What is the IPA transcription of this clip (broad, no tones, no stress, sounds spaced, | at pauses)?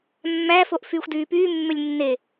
mː æ f o ʔ f yː xʷ d yː p yː mː ø lʲ nː e